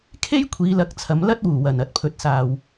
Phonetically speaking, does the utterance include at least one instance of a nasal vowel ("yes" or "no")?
no